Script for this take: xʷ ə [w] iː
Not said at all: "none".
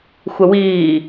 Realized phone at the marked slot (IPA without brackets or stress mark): w